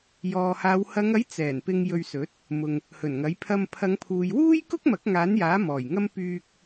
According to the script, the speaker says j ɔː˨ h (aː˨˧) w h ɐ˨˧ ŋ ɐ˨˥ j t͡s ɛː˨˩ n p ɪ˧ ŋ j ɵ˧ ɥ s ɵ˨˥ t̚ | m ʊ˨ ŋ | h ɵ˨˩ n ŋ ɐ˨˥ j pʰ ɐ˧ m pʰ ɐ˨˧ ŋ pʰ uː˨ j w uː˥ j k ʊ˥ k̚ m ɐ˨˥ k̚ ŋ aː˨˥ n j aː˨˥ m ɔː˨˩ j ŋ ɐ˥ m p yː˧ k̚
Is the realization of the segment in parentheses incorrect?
no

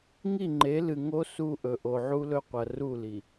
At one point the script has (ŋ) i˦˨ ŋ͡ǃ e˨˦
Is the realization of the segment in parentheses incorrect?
no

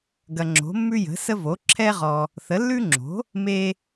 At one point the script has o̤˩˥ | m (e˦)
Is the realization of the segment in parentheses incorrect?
no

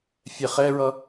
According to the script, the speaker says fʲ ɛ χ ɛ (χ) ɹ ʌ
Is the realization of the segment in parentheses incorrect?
yes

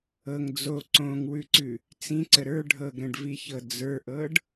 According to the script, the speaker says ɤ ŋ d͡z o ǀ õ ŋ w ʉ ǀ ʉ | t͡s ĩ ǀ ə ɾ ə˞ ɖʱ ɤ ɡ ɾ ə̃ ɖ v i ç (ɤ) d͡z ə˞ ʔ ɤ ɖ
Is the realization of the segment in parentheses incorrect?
no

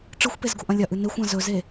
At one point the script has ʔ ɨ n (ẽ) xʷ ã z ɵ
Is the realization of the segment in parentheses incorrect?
yes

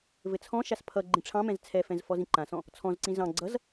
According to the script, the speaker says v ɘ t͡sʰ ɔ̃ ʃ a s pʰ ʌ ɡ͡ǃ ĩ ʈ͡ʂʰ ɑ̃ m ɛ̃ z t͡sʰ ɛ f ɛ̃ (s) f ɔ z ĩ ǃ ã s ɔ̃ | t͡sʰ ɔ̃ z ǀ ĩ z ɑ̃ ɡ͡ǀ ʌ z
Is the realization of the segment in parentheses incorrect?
yes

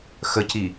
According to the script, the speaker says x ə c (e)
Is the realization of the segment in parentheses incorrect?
yes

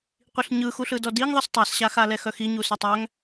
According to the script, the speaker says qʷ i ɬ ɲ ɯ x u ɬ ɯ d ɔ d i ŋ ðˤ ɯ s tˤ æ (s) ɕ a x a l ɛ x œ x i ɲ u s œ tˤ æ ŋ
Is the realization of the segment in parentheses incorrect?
no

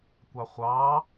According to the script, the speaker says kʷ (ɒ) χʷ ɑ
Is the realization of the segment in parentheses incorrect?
yes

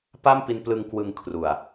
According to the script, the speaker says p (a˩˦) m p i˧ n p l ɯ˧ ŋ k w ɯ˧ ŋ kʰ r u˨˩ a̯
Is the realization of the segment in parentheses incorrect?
yes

